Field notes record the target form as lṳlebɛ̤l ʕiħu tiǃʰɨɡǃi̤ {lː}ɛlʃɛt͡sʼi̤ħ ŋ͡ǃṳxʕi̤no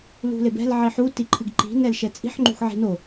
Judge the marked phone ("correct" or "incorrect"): incorrect